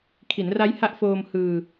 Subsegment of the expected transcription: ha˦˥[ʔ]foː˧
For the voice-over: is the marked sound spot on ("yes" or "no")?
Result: yes